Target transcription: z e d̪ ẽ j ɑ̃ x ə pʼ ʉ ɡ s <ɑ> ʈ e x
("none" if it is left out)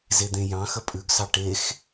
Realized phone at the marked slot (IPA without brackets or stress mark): ɑ